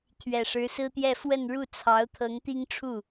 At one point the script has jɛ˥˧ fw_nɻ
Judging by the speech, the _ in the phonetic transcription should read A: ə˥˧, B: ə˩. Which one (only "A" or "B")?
A